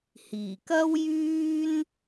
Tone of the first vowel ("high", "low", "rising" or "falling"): low